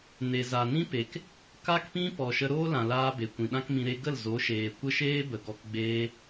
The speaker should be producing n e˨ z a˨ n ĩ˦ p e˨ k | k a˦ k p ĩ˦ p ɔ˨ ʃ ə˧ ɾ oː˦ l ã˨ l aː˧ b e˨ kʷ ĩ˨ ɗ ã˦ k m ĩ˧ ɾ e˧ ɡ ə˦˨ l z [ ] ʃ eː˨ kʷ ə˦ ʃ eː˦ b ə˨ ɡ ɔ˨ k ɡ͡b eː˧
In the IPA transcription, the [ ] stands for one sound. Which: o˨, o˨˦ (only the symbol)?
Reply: o˨˦